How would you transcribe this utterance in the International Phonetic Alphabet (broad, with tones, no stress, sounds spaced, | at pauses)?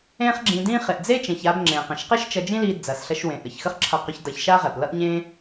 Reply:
ẽ˥ χ ɡ͡ǁ ĩ˧ d ĩ˥ χ e˩ ʔ d͡z e˥ t͡ʃ ẽ˩ ç a˧ b ŋ͡ǁ ẽ˩ q ɐ̃˩ ʃ q e˥ ʃ t͡ʃ ʌ˧ d͡ʒ ĩ˥ l i˧ d͡z ɐ˩ s ɬ ɐ˧ ʃ w ẽ˩ ʔ ə˩ ç x ə˥ χ ǁʰ ʌ˧ q ɵ˧ ç d ʌ˧ ç ʃ a˥ ʁ ɛ˩ p l ʌ˥ ʔ ɲ ẽ˥